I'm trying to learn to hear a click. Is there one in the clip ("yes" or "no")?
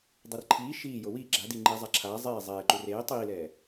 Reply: yes